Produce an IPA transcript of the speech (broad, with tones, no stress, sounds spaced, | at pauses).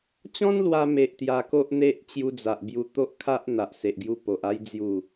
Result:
t͡ɕ ɔ̃˦ n l w a˧ m e˨ ʔ t̪ j a˧ k o˦ ʔ n̪ e˦ ʔ t͡ɕ j u˧ d͡z a˨ ʔ b j u˧ t̪ o˦ ʔ kʰ a˦ ʔ n̪ a˨ ʔ s e˨ ʔ ɡ j u˧ p o˨ ʔ a˧ j d͡z j u˥˧